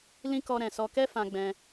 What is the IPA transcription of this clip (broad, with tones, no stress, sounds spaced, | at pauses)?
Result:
l ĩ˦ k ɔ˧ ɾ ɛ̃˨ s ɔ˧ k ɛ˦ f ã˧ ɡ͡b ɛ̃˧